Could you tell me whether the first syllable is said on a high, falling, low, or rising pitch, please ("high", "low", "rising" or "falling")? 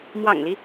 low